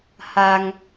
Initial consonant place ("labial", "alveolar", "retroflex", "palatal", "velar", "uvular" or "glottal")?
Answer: glottal